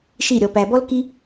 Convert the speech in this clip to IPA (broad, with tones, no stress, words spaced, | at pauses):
ʃi˦˨ɾʲɔ˧pæ˧ bɔ˦lki˦